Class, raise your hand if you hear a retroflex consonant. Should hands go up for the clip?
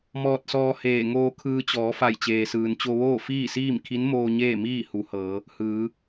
no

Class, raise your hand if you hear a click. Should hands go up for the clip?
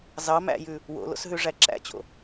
yes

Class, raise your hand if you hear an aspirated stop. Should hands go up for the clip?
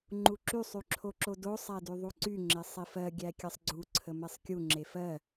yes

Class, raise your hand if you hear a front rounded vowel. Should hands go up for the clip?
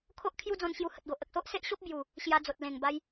no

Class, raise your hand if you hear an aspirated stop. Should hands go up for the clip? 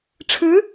yes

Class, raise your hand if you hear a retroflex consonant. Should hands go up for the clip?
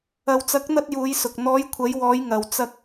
no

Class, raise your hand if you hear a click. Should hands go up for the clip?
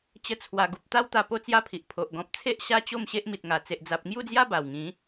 no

